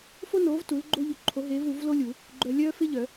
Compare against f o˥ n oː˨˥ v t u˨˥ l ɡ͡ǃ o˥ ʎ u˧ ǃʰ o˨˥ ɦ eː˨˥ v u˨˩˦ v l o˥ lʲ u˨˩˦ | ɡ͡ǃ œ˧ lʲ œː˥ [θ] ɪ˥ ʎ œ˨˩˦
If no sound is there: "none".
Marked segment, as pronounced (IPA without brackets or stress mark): f